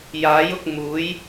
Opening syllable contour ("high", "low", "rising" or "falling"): rising